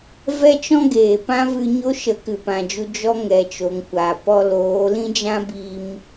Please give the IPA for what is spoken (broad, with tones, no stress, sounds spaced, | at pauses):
v ɛ˦ t͡ʃ ɔ̃˦ ɡ eː˨ p ã˦ v ɨ˧ ɲ o˦ ʃ ə˨˦ k ɨ˨ p ã˨ d͡ʒ u˧ d͡ʒ ɔ˦ ŋ ɛ˨ t͡ʃ o˨ ŋ kʷ aː˨ p ɔ˧ l oː˨˦ l ĩ˦ d͡ʒ ã˦ b i˧ m